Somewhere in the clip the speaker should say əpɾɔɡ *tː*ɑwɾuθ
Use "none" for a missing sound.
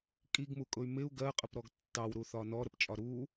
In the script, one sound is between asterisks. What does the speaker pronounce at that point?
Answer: tː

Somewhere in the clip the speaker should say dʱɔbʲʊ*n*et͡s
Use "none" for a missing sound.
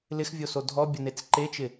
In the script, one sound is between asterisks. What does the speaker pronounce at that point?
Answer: n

